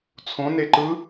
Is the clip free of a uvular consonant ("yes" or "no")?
yes